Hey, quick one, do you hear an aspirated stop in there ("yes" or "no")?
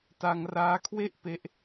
yes